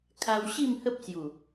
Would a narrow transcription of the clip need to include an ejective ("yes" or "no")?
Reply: no